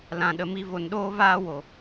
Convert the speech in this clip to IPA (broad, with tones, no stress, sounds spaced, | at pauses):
l ã˨ ɗ ə˨ m i˧ v o˨ n ɗ oː˧ v aː˧ w o˨